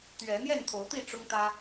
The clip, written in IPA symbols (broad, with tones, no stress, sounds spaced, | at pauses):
t̪ ɥ ɛ˨˦ n̪ j ɛ˥˨ n t̪ʰ o˨˦ ʊ̯ t̪ i˥˨ ʈ͡ʂ ʊ˦ ŋ t̪ ä˦